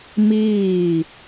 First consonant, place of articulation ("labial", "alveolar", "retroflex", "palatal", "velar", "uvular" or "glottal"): labial